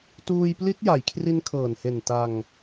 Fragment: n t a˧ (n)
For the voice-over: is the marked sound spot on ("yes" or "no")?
no